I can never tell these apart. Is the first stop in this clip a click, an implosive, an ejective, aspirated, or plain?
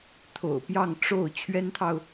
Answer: aspirated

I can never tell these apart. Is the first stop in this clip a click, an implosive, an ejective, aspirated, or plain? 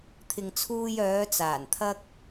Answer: aspirated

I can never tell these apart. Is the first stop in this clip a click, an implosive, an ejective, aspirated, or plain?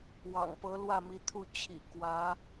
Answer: plain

